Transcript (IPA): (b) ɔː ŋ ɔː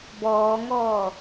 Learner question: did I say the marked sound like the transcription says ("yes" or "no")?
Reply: yes